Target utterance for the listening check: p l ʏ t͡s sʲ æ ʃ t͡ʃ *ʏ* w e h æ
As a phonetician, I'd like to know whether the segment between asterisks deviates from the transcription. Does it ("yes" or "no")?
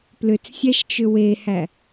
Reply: no